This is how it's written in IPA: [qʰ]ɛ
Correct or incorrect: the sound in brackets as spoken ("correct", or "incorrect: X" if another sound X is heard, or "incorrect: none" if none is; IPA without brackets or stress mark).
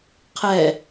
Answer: correct